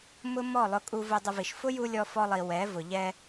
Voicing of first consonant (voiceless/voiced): voiced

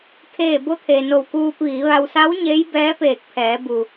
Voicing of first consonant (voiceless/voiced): voiceless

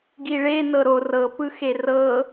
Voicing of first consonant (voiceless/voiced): voiced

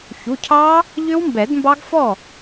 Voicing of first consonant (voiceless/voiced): voiceless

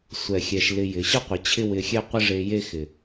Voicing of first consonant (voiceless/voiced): voiceless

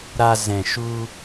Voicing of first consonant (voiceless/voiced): voiced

